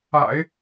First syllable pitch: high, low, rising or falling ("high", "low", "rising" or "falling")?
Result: low